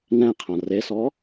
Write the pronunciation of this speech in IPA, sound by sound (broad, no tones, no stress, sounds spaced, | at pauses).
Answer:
n ɛ̃ qʰ ã r e s ɔ